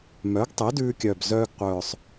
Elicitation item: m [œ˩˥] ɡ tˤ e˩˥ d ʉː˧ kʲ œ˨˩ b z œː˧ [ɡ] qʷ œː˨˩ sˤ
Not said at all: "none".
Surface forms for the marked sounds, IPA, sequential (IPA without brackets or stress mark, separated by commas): œ˩˥, ɡ